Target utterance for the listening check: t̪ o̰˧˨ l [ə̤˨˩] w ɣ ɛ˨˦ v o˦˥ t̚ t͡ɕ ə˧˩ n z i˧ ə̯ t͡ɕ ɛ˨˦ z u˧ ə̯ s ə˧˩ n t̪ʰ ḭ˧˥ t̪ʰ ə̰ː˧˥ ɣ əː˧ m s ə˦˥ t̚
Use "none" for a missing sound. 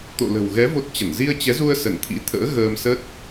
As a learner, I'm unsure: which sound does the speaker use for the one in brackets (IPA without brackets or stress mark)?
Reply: ə̤˨˩